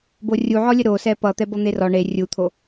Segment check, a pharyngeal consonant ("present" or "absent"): present